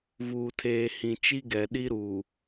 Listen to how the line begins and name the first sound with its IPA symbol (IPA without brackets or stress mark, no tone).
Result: v